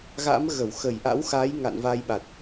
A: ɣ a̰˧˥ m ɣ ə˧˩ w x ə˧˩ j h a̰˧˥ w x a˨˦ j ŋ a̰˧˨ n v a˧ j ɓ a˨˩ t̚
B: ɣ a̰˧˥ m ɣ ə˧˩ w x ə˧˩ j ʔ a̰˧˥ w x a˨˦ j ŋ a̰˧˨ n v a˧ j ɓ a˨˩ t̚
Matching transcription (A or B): B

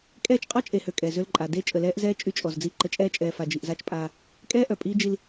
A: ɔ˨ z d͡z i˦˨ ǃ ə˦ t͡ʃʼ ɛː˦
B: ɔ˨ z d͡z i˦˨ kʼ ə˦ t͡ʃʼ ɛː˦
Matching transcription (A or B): A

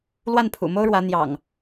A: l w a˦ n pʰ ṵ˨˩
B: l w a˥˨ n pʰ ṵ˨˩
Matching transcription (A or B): B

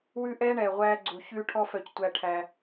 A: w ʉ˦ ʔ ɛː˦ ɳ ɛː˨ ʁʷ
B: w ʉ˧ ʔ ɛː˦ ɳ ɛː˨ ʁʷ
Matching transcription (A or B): A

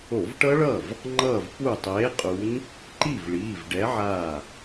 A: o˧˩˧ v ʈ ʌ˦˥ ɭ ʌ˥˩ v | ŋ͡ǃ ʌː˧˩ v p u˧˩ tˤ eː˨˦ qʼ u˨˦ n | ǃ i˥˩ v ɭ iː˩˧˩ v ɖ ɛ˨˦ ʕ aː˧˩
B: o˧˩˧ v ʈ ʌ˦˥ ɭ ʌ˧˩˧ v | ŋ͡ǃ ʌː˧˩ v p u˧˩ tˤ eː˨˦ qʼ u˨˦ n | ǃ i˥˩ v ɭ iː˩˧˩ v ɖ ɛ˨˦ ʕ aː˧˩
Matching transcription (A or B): A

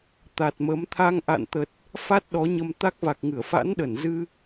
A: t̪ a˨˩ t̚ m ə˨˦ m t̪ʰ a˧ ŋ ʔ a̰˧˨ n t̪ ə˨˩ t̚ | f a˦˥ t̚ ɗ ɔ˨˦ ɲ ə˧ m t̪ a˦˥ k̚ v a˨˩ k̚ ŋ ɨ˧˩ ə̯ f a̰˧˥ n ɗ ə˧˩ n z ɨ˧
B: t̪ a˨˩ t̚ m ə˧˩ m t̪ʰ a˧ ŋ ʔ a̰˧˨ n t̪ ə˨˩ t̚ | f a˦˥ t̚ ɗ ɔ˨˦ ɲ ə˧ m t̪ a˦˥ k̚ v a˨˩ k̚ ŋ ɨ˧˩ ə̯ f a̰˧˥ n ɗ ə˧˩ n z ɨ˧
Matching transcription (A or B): A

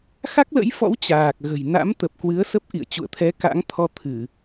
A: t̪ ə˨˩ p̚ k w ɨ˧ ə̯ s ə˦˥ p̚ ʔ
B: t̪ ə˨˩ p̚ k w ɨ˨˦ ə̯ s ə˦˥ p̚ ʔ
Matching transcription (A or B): B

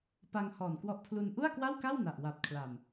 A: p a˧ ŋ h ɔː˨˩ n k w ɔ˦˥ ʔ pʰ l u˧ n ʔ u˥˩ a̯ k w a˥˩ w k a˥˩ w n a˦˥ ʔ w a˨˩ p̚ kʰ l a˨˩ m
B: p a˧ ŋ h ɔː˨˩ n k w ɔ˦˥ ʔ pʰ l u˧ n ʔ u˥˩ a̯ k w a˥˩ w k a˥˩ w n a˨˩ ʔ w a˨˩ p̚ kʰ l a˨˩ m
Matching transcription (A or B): B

